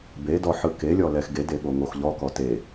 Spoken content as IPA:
b e d ɔ ħ ɯ k e lʲ ɔ l ɛ x ɡ e d e ɠ o ŋ o x ʎ ɔ k ɔ t e

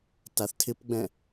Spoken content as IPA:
t a θ tʰ ɪ p ɡ͡b ɛ̃

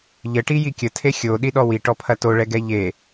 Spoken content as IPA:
ʎ ə ʈ i j i kʲ ə tʰ e xʲ o ɗ i ɗ ɔ w i ʈ ɔ pʰ ɐ t o ɭ ɛ ɡ ɛ ʎ e

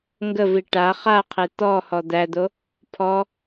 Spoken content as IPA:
ŋ ɡ ə v i ʈ a χ a qʰ e t̪ ɔ h ɔ d̪ æ d̪ o | pʰ ɔ

